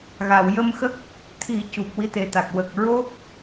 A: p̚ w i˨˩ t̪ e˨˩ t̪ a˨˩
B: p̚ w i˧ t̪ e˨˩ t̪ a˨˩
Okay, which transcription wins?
B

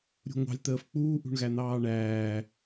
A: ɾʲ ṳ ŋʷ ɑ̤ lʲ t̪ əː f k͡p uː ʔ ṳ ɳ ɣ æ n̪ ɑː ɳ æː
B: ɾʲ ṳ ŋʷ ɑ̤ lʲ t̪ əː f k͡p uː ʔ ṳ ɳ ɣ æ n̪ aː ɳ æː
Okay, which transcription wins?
A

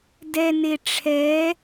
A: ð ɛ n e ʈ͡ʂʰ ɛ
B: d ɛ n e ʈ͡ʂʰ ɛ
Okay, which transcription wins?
B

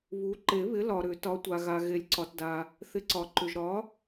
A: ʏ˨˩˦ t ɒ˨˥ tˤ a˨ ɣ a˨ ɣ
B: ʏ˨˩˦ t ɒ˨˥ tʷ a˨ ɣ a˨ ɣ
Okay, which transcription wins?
B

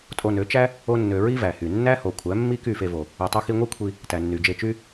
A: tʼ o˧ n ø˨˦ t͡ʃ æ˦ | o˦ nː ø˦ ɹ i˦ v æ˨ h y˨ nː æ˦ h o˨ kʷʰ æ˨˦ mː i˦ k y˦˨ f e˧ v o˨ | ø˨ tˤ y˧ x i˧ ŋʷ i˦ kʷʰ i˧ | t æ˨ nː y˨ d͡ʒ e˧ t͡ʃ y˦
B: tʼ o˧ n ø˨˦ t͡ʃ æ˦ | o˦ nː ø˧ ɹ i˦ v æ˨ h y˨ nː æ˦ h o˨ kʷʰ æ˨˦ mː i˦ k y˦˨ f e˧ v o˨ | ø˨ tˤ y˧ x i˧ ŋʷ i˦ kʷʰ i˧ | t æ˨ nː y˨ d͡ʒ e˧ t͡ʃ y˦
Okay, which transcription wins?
B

